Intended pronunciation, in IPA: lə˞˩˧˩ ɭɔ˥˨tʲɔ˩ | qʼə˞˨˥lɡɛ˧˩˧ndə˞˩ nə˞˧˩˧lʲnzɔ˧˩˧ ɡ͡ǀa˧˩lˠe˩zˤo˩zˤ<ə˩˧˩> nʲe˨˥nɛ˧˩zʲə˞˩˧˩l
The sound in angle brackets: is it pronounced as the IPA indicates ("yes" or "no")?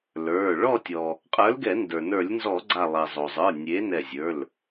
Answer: no